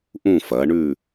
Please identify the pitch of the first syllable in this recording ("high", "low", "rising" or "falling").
falling